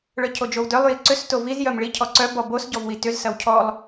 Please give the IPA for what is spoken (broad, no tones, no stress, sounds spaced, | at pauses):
ɭ œ cʰ o d͡ʒ o w d œ lˠ j i ǀ ʏ s t o v i z j œ m ɭ i cʰ ɔ ǀ œ b ɔ b o s ɟ ɔ v w i t ʏ z s ɐ w cʰ ɔ lˠ